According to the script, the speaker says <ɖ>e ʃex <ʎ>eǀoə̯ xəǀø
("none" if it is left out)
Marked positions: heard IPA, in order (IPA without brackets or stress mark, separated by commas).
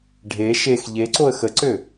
ɖʱ, ʎ